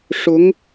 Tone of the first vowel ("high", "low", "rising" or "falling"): rising